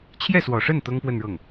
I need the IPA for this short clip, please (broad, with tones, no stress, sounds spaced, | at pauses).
t͡ɕʰ j ɛ˥˩ s w ɔ˨˩ ʂ ə˥˩ n t̪ ɤ˥ ŋ p w ə˥˧ n ɻ ɤ˥˩ ŋ